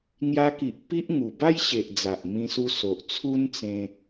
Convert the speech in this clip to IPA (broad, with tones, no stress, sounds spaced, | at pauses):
ŋ j a˧ k i˨ ʔ p i˦ ʔ ŋ u˨˩ b a˦ j ɕ e˨ ʔ d͡z a˨ ʔ m ĩ˧ s u˧ s o˨ ʔ t͡sʰ u˦ n t͡s ẽ˧